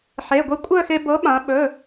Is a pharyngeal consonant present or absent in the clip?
present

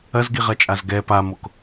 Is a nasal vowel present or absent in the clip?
absent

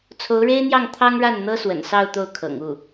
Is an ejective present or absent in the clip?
absent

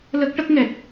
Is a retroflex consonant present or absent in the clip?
present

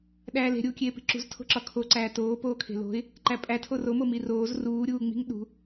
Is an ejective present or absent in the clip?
present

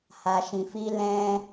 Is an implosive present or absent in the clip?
absent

